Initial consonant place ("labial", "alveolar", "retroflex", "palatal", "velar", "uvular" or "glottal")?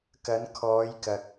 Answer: velar